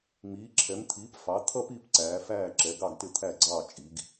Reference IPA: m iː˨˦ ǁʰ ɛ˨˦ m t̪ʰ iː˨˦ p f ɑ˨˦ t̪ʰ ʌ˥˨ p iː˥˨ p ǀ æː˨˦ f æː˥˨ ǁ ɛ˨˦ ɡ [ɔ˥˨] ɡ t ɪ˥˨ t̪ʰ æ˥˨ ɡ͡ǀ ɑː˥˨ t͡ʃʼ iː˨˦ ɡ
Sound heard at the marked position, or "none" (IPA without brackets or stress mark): ɑ˥˨